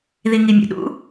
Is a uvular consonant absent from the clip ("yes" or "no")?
yes